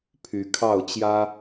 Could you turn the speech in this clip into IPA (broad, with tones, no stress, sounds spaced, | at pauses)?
pʰ y˨˦ kʰ ɑ˥˨ ʊ̯ t͡ɕ j ä˦